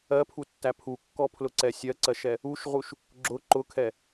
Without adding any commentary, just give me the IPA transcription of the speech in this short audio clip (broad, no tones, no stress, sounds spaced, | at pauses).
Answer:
ɜ pʰ u tː æ pʰ u kː ɔ pʰ l ʊ ǀ ɛ sʲ ɜ ǀ ɜ ʃ ɛ | u ʃ ʁ u ʃ | ɡ͡ǁ ʊ ǃ ʊ kʰ ɛ